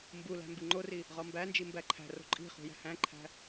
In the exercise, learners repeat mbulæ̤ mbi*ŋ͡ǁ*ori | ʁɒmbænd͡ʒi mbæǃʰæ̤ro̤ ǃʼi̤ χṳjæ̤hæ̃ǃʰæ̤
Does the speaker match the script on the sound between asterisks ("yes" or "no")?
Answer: no